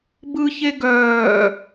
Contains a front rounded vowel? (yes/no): yes